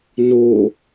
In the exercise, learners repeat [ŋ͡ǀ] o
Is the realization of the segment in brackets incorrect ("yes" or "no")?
yes